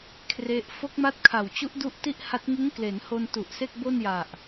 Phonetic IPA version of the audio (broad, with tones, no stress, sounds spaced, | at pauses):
kʰ r e˦˥ ʔ f o˦˥ k̚ m a˦˥ t̚ kʰ a˨˩ w t͡ɕ u˦˥ ʔ d u˦˥ ʔ t i˥˩ ʔ h a˦˥ t̚ ŋ ɯ˦˥ ŋ k l eː˩˦ n h o˧ n t u˨˩ ʔ s e˥˩ k̚ b o˥˩ n j a˨˩ ʔ